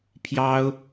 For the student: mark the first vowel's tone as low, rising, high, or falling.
high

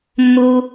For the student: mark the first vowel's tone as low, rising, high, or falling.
high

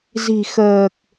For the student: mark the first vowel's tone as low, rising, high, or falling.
low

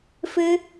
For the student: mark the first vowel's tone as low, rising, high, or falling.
high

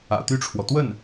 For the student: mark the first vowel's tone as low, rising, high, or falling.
low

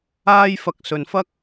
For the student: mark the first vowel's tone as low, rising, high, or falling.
high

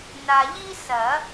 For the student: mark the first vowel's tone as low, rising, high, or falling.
low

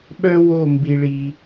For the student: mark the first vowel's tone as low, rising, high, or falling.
high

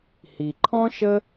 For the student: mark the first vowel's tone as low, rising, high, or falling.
low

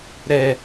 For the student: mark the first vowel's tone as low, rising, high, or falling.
low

